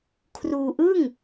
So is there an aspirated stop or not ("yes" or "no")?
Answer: yes